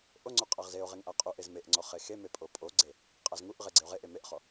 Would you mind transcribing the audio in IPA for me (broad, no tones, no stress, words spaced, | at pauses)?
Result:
ʔoŋ͡ǀo qʼaʁzeo̯ʁeŋ ʔaqʼuʔez meʔŋ͡ǀɔ χexeme pʼopʼoɡ͡ǀe | qʼazŋuʔʁe ɡ͡ǀeo̯ʁeʔe meʔχɔ